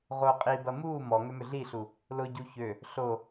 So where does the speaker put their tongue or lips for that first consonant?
uvula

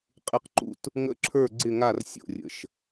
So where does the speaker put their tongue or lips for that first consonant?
uvula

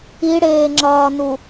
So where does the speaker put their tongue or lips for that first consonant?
retroflex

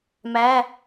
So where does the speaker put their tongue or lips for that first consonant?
lips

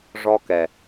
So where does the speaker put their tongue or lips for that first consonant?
retroflex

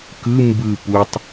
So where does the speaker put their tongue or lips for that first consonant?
velum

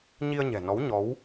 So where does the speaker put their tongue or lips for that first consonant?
palate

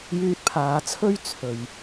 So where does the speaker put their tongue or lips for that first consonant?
palate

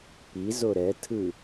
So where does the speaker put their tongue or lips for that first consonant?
lips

